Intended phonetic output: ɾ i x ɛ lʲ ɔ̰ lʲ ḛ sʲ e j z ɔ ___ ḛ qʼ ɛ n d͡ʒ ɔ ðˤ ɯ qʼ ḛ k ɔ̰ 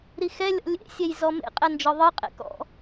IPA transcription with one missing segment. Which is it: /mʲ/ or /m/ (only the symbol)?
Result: m